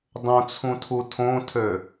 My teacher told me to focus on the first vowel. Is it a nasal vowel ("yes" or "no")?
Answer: yes